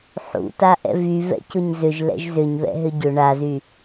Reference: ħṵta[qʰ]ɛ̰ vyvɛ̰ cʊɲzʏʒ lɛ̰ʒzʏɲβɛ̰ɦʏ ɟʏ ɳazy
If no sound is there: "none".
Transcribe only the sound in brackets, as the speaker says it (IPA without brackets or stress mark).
ʔ